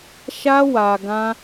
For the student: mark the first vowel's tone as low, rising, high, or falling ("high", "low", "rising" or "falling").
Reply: high